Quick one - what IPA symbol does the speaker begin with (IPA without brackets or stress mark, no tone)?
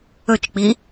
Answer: ɵ